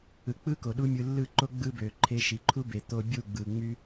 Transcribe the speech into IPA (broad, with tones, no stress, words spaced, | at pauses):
ɯ˨k͡pɯ˦ ko˨ɗu˦mʲɯ˧ lːɯ˦˨ǃo˦ ɡ͡bɯ˦bø˨ ǃʰe˧ʃi˨ǃʰu˦be˨ t̪o˧ bʲu˦˨ɡ͡bɯ˨ŋ͡my˦